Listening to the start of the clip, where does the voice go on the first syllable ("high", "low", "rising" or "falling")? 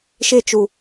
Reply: falling